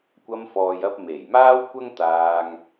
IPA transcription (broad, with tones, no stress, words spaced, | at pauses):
kʷɐ˧mfɔː˨jɐ˧p̚ me˨˩j maː˥wkʷɐ˥ŋ t̪aː˧ŋ